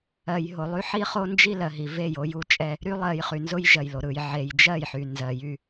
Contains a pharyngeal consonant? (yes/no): yes